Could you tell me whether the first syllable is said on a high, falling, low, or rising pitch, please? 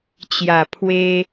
low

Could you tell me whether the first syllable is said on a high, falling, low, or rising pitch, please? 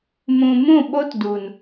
low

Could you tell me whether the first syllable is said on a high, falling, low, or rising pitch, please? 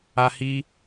high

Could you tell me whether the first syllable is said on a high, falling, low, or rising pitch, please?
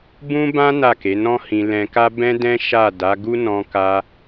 high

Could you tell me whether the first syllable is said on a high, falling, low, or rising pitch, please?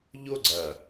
high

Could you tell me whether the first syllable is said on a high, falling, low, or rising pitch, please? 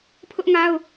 high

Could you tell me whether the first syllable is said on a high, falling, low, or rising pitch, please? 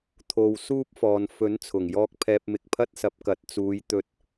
low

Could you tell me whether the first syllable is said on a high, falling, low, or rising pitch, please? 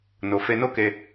low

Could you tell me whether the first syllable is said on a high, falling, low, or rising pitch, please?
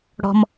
low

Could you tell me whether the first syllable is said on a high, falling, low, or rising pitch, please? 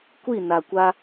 falling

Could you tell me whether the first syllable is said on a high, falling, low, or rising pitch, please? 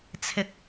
low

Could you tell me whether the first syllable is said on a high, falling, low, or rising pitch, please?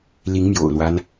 rising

